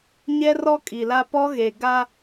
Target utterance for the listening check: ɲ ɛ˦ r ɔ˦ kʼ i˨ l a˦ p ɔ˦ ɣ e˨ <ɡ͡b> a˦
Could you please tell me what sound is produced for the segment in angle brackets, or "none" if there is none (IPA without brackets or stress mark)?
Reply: ɡ